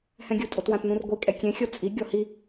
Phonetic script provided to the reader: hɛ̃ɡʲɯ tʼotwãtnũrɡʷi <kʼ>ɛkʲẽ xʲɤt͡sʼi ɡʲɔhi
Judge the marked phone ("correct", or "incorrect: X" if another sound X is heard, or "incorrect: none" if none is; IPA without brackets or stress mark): correct